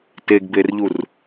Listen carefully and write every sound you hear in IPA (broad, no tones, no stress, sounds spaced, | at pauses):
t e ɡ b e r ʎ u r